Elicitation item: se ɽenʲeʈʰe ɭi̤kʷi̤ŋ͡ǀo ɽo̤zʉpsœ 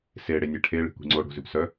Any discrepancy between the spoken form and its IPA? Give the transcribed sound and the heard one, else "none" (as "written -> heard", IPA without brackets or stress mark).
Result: none